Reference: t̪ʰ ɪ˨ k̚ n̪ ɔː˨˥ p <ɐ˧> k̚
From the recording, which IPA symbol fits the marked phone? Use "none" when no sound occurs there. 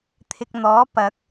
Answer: ɐ˨˥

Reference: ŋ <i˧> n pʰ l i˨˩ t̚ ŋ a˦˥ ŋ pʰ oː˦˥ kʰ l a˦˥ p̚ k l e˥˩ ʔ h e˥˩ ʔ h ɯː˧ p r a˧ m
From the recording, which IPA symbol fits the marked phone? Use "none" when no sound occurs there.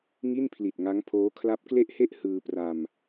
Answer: i˥˩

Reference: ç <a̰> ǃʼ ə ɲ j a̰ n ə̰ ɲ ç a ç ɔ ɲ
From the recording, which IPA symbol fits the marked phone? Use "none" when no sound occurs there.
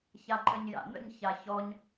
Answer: a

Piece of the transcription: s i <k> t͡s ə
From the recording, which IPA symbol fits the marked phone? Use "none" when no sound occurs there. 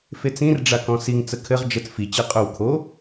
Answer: ŋ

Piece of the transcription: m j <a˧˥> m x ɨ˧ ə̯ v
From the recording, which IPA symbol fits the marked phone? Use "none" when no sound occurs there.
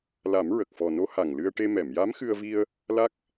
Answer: a˧˥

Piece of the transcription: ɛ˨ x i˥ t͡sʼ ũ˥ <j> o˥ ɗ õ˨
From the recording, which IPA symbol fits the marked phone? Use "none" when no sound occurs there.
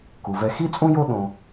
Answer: j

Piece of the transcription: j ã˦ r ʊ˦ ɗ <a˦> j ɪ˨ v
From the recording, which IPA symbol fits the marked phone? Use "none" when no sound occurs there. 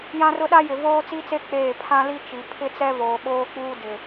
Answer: a˦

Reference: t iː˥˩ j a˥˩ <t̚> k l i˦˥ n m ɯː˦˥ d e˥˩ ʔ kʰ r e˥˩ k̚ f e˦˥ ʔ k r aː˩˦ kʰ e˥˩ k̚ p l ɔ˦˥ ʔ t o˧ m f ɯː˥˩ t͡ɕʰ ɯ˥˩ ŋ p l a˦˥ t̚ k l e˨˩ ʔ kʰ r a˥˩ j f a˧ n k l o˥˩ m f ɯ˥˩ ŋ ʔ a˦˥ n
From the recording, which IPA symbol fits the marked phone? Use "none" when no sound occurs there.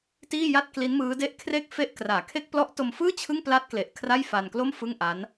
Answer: t̚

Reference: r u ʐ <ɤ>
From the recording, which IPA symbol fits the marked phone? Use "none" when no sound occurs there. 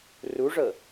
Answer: ɤ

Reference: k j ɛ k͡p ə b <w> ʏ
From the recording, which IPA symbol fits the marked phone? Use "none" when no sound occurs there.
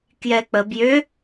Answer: j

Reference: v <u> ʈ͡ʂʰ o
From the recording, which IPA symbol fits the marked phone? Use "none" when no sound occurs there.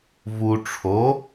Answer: u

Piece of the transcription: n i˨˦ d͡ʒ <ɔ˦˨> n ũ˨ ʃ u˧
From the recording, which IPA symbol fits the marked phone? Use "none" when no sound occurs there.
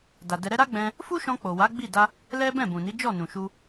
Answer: ɔ˦˨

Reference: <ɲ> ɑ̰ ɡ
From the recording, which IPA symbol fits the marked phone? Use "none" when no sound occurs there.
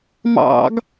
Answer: m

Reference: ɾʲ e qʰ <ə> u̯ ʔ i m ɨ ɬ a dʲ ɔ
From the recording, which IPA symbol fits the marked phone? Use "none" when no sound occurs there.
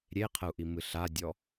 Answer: ə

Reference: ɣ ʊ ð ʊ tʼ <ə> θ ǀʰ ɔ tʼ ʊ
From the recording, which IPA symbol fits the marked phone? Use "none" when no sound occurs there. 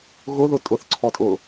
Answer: ʊ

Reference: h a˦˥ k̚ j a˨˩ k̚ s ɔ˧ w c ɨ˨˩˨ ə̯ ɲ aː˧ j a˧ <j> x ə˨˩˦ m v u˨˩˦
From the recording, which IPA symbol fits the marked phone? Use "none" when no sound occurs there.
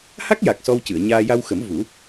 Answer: w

